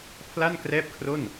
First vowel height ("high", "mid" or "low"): low